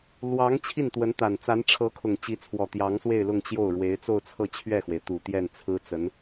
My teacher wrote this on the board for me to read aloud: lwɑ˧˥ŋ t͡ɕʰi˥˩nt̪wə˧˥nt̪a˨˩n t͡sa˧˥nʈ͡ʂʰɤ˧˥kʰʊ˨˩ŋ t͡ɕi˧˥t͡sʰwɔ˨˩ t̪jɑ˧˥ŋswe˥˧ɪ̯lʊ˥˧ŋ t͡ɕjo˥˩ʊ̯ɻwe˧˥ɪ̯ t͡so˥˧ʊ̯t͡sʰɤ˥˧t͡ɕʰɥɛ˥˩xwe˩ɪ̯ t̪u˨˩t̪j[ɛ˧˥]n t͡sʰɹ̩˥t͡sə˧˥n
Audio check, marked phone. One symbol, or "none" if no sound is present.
ɛ˥˩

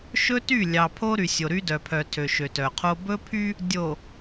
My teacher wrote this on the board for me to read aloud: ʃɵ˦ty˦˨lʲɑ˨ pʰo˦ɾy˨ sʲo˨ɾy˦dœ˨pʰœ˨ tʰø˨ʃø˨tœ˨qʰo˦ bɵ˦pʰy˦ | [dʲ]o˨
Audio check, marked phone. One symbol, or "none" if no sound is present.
dʲ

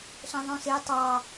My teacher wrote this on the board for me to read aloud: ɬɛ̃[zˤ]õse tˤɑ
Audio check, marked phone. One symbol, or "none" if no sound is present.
ðˤ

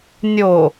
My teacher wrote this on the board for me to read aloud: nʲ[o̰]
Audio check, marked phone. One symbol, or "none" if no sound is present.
o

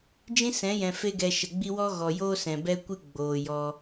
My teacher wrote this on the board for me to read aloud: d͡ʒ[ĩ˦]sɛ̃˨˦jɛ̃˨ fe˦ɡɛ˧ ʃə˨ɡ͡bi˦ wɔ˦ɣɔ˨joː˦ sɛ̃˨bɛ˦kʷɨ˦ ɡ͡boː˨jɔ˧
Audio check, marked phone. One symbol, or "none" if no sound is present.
ĩ˦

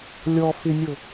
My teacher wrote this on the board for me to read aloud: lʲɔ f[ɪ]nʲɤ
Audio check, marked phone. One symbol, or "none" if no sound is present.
ɪ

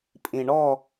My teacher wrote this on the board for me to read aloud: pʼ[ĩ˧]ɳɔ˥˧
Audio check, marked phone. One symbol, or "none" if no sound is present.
ĩ˧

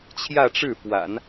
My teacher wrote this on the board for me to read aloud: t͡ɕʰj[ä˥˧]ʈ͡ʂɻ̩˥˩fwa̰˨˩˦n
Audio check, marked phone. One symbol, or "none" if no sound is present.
ä˥˧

